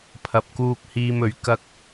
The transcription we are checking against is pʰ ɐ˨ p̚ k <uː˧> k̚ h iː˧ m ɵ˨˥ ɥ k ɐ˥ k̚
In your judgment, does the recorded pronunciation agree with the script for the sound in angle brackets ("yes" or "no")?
yes